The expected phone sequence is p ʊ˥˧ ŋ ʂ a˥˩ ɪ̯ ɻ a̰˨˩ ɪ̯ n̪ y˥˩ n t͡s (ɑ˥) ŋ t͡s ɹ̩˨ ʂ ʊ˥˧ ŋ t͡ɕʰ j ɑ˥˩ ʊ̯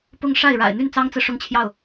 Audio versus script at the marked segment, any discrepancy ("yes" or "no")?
no